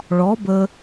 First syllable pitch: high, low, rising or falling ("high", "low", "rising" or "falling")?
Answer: rising